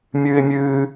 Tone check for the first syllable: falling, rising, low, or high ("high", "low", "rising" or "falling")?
high